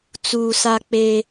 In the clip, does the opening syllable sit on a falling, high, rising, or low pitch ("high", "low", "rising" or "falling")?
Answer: low